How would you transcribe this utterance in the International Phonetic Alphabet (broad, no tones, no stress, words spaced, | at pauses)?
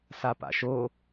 sapa̰ʃo